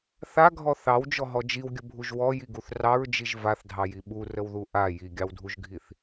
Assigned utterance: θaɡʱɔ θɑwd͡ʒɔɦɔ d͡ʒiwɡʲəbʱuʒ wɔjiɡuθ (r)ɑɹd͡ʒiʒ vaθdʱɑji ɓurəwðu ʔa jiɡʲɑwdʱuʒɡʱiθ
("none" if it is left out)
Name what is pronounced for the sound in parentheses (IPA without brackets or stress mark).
r